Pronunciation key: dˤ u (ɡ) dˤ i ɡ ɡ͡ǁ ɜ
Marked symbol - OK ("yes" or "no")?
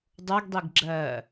yes